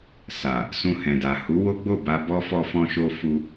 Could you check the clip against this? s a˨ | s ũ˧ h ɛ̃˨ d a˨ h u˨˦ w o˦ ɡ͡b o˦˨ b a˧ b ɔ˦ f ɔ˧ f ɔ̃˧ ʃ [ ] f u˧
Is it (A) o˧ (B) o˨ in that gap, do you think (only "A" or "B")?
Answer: A